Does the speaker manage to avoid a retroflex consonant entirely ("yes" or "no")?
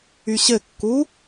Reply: yes